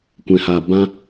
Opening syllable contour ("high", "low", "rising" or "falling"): low